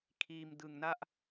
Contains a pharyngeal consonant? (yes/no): no